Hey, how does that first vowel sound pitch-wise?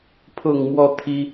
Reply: low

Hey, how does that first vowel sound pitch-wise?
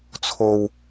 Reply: low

